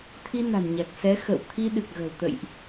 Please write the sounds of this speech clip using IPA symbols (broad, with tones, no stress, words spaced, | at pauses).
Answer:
t̪ʰi˧ na̤˨˩n ɲa˨˩k̚ sɛ˨˦xə̰˧˨wt̪ʰi˧ɗɨ˨˩k̚ ɣə̤˨˩wt̪ə̰˧˨jʔ